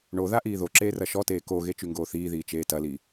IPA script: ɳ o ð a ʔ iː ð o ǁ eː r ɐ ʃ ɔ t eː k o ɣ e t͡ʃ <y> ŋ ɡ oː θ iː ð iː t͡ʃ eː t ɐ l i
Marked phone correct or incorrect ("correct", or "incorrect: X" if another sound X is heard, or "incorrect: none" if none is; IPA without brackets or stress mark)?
correct